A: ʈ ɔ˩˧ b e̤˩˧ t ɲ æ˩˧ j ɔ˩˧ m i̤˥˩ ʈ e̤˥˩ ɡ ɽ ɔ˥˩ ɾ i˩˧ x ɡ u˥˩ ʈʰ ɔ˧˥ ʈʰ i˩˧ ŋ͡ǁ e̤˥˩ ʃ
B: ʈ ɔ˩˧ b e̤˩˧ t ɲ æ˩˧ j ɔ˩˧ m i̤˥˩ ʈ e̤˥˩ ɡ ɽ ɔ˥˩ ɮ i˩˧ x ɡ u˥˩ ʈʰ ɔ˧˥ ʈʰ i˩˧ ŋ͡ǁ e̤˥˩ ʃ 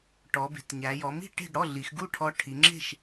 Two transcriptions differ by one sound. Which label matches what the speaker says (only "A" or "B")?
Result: B